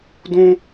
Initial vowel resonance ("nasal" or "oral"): nasal